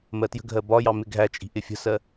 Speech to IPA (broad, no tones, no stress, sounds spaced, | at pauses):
m ɜ t j ə̤ ɡʱ ɜ b ɒ j ɑ m ɪ ɡʱ æ t͡ʃʼ i̤ ʔ ɪ fʲ ə̤ s ɜ